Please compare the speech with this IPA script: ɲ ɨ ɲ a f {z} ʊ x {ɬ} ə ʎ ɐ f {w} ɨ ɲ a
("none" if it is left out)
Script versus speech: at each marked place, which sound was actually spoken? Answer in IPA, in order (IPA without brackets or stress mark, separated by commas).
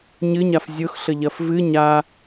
zʲ, ɬ, v